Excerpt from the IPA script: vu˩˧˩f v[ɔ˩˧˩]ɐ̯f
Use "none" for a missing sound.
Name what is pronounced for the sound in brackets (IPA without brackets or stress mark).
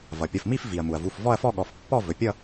ɔ˥˧